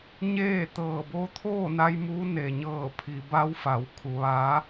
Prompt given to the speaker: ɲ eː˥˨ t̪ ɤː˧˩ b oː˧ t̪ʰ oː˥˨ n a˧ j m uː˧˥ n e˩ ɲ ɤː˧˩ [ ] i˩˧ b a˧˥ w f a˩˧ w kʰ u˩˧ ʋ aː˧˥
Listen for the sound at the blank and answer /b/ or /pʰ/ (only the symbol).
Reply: pʰ